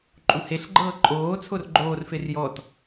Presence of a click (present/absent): present